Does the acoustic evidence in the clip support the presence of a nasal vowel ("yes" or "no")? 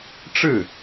no